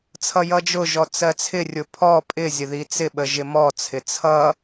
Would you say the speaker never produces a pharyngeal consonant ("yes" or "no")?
yes